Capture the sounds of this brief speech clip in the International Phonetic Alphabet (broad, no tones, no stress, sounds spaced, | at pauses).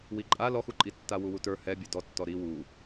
w i ǃʼ a l ɔ x u ǃʼ i tː a w u w u t ə˞ h ɛ bʲ ɛ d ɔ tː ɔ ɾ i w u